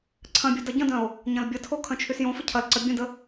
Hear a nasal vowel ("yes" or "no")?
yes